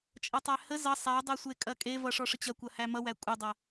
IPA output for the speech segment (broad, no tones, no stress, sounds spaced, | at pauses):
t͡ʃʼ ʌ tˤ æ h ə z ʌ sˤ æ dˤ e sʷ e kʼ ɐ kʼ e v ʌ ʂ ɔ ʂ ə t͡ɕ ɐ kʷ ɐ h æ m ʌ w æ kʷʼ ə dˤ ɐ